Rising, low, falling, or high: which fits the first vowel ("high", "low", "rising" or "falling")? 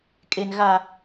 low